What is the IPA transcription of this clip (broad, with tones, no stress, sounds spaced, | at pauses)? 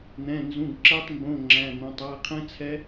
n̪ ɛ̃˧˥˧ n z ũ˧˥˧ ɡ ǁ ɛ˦˥ tˤ m b õ˧˥˧ ŋ͡ǁ æ̃˧˥˧ n̪ õ˧˥˧ tˤ æ˧˥˧ qʰ ɛ̃˦˥ t͡sʰ ɛ˦˥